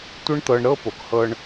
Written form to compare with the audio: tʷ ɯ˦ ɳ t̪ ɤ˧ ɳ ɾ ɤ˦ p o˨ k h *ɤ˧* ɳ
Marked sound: correct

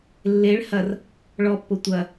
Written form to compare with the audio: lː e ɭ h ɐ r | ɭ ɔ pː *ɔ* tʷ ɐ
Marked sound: incorrect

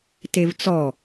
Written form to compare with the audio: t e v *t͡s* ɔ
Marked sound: correct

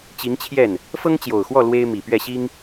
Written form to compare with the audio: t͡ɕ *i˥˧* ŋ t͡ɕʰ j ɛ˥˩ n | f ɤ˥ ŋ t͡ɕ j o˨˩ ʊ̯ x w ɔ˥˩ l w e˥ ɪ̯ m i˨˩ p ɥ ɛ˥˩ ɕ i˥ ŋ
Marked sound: incorrect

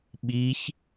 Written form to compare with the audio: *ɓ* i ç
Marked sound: correct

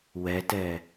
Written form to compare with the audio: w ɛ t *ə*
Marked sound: incorrect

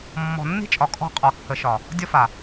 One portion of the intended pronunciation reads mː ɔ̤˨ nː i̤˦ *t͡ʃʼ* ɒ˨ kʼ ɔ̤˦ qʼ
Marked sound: correct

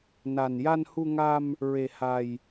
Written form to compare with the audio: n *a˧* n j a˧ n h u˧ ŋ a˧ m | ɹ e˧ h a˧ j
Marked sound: correct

